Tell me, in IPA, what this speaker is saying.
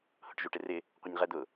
h ʊ ʈ ʒ u ʈ ɪ r ɪ | qʷ ə ɲ ʁ ɛ d̪ ʊ

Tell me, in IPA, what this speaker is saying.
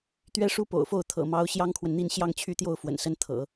t̪ ɥ ɛ˥ ʂ u˥ p o̰˨˩ ʊ̯ f o˥˩ ʊ̯ t̪ʰ ɤ̰˨˩ m ɑ˧˥ ʊ̯ ɕ j ɑ˥ ŋ kʰ w ə˨ n n̪ i˥˧ n ɕ j ɑ˥˧ ŋ t͡ɕʰ y˥˧ t̪ j o˥˩ ʊ̯ f w ə̰˨˩ n s ə˥ n t̪ʰ ɤ̰˨˩˦

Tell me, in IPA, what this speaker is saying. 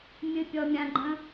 mʲ ɨ pʲ ɔ mʲ ã ɡ͡ǃ ə̃

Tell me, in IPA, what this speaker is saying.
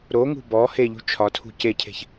ɾ o ŋ ṳ b ɔ h e ʎ ṳ t͡ʃʰ ɒ tʰ ṳ c e cʰ e̤ ç

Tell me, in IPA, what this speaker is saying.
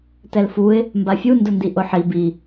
t ɛ l f u ɪ̯ | m b a fʲ u n d ʊ n d i ʔ ʊ ħ i b i

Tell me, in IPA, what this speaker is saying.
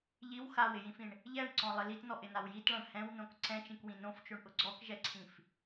ʎ i w x a w ɪ j ĩ f ĩ ɳ | ʎ ɛ ɳ ǀ ɔ̃ lˠ ɪ l i t n ɔ ʔ ɪ n a w j i t ɭ ã ɳ h ɛ̃ w n õ k ǀ ɛ̃ t͡ʃ ĩ k w ĩ n õ f t͡ʃ o ɳ ʔ ʊ ɡ͡ǀ ɔ k ʒ ɛ ǀʰ ĩ f

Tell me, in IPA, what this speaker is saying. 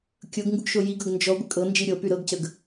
kʲ ɤ ɡ ŋ ɡ u ɡ ʃ o j i ɡ ɤ ɡ n d͡ʒ ɔ ɡʷ ə kʼ ɤ n d͡ʒ i ɾʲ ɤ p y ɾ ɤ ɡ c ə ɡ

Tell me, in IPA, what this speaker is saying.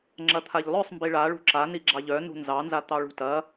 ŋ͡ǁ ɐ t̪ʰ a ʎ lˠ œ sˤ m b i ɭ a ɭ ṳ ǁ a n i ɡ͡ǁ ɑ ʎ œ n ṳ n z ɑ n z a t̪ ɑ ɭ ṳ t ɐ

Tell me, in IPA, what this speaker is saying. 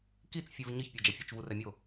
k i t͡s fʲ ɨ v ɲ ɨ ç pʲ o d͡ʒ ɐ fʲ u t͡ʃ v u r ɛ mʲ o

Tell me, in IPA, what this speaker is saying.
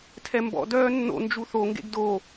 tʰ ɛ m b ɔ̰ d œː nː o̰ n d͡ʒ u θ o ŋ ɡ ḛ ɡ d o

